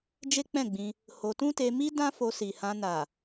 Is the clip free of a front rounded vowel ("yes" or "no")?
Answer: yes